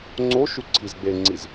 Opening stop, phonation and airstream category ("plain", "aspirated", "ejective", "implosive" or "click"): click